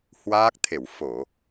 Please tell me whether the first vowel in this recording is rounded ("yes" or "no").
no